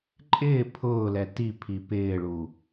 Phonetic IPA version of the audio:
ǃʼ ɪː pʰ ʊː l ɛ t i pʰ i p ɪː ɭ u

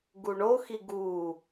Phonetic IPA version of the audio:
ɡ u ɳ o x i ɡ u

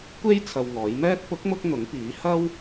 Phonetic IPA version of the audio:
kʷ e˥ j t͡sʰ ɐ˧ w ŋ ɔː˨˥ j m ɛː˥ t̚ p ʊ˨˥ k̚ m ʊ˧ k̚ n̪ ʊ˨˥ ŋ p iː˨˥ h ɐ˥ w

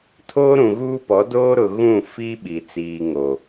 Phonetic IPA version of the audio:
tʰ oː˦ ɾ ũ˨ ɣ uː˦ p ɔ˨˦ d oː˦ ɾ ʊ˨ ɣ ũ˦˨ f i˦ ɓ i˨ t͡s iː˨ ŋ o˨

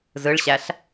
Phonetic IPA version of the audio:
z ɯ ɭ ɕ æ ɬ

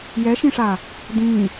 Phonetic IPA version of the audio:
j ɛ ʃ ĩ ʂ aː | d ĩː

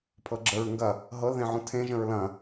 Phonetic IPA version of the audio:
pʰ ɤ ɡ͡ǁ ə ɹ ŋ ɡ ɐ | ɦ ɤ l ð ẽ ʕ ũ tʰ ẽ ʒ ə̃ ɹ l ɐ̃

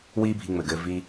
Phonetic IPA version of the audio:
w iː˦ bʱ i˧ ŋ͡m ɘ˨ ɡ ɘː˧ v i˧

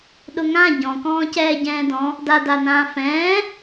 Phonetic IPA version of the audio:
ɗ ʊ ŋ ã ɟ ɔ̃ k ɔ̃ː c ɛː ɟ ɛ̃ː d ɔ̃ | d a d a n ãː f ɛ̃ː

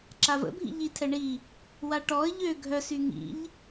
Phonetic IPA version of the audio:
ǁ a v ə̰ bʱ ḭ ʎ i tʰ ɛ ɳ i | w a ʈ ɔ ə̯ ʎ ø ɡʱ œ s y ŋ ḭ ʎ

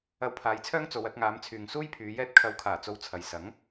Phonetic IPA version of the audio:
ɐ˧ w pʰ aː˨˧ j t͡sʰ œː˥ ŋ t͡s o˨˧ w ɐ˧ t̚ ŋ aː˨˧ m t͡sʰ yː˨ ŋ s uː˥ j pʰ yː˨˧ j ɛː˧ t̚ kʰ ɐ˨˥ w kʰ aː˨˩ t͡s o˧ w t͡sʰ ɐ˨ j s ɐ˨˥ ŋ

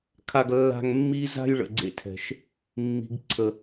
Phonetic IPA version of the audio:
kʰ a˧ ɡ lː a̤˧ ŋ mː i˦ z a̤˦ j ɭ ə̰˨ ɡ͡ǀ ḛ˦ tʰ ɛ̤˨ ʃ | mː i̤˨ ɡ ǀʰ ə˨

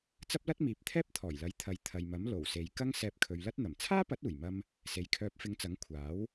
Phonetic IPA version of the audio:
t͡s ɐ˥ p̚ l ɐ˥ t̚ m iː˨ p̚ t̪ʰ ɛː˥ p̚ t̪ʰ ɔː˨˩ j l ɐ˨˥ j t̪ʰ ɐ˨ j t̪ʰ ɐ˨ j m ɐ˨˥ m l o˨˩ w s e˨ j k ɐ˥ ŋ s ɛː˧ p̚ kʰ ɵ˨˧ ɥ l ɐ˥ t̚ n̪ ɐ˨˩ m t͡sʰ aː˥ p ɐ˨˥ t̚ uː˨˩ j m ɐ˧ m | s e˨ j kʰ œː˧ p̚ f ɪ˧ ŋ t͡s ɐ˨˥ ŋ kʷʰ aː˨˥ w

